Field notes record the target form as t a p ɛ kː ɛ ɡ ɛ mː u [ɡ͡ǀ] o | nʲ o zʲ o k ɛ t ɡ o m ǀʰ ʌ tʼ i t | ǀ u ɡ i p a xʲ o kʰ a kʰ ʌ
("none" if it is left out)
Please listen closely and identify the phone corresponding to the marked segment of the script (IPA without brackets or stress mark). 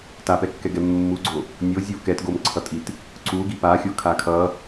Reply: ɡ͡ǀ